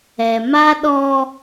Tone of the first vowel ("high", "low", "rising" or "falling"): low